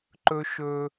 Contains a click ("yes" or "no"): yes